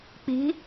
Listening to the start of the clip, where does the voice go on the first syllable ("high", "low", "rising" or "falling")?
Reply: rising